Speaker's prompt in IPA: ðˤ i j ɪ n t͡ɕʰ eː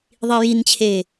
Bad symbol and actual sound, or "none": ɪ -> i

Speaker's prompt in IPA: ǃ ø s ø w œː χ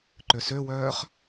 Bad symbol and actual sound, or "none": none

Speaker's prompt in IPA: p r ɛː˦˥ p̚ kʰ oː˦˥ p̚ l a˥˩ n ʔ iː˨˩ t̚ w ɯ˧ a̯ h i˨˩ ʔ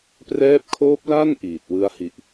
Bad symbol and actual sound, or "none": none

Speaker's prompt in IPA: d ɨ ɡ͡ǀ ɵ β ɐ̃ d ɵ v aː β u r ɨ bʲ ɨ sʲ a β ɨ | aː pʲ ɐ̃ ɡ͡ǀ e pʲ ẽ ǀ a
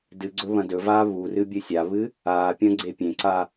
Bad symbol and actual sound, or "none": none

